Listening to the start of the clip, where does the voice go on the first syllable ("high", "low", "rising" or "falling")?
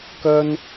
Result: high